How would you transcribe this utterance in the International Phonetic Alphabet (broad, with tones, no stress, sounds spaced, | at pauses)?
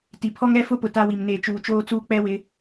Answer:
t i˨ pʰ ɔ˦ ŋ ɛ˦ f ʊ˦ p ʊ˨ t a˦ w i˨ m n eː˨ t͡ʃ uː˨ t͡ʃ oː˦ t͡s uː˦ k͡p ɛ˦ w ɪ˨˦